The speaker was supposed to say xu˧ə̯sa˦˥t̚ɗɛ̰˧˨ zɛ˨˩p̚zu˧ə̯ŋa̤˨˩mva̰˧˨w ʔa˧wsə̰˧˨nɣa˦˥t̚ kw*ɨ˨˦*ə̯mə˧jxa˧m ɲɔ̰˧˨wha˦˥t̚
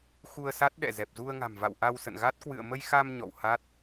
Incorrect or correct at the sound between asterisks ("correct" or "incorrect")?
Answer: incorrect